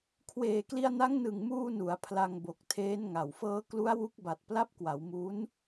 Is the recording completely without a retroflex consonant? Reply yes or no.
yes